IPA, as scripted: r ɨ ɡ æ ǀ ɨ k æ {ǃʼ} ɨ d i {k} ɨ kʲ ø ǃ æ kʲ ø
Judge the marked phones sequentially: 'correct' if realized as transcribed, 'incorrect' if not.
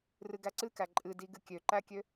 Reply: correct, incorrect: ɡ

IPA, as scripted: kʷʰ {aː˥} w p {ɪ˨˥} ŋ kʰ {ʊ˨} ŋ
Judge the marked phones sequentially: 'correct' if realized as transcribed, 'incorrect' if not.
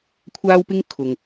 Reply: correct, incorrect: ɪ˥, correct

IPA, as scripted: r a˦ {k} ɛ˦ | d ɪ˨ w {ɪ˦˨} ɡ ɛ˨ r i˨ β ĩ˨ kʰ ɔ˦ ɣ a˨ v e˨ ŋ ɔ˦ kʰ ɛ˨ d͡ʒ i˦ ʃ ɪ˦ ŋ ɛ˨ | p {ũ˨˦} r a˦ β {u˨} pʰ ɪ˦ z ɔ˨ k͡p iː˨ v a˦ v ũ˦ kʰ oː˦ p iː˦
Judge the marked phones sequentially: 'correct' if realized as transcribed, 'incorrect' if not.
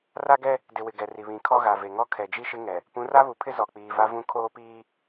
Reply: incorrect: ɡ, incorrect: ɪ˨, correct, correct

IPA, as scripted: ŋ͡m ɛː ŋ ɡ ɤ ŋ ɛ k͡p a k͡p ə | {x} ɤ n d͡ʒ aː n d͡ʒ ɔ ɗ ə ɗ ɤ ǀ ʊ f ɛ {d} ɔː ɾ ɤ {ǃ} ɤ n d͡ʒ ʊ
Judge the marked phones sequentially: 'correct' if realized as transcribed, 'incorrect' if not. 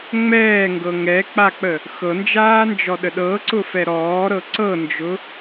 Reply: correct, incorrect: ɾ, incorrect: ǀ

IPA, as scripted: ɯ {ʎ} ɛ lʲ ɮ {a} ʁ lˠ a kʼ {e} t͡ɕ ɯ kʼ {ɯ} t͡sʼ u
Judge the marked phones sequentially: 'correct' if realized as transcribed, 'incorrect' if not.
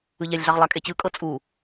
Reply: correct, correct, correct, incorrect: ɤ

